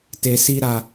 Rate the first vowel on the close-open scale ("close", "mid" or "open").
mid